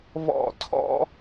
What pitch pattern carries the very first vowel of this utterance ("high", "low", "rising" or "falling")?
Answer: falling